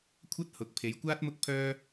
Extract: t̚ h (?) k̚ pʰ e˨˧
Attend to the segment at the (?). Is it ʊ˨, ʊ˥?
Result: ʊ˨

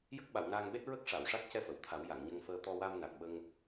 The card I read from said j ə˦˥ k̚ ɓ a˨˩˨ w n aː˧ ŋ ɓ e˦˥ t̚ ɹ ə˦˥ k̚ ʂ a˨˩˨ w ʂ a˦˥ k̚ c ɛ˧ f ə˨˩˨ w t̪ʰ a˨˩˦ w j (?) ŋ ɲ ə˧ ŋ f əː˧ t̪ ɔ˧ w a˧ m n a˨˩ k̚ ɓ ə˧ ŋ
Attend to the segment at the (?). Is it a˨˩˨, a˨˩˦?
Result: a˨˩˨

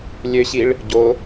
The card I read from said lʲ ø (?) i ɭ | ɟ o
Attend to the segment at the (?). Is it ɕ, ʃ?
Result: ɕ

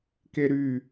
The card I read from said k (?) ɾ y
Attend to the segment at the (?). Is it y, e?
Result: e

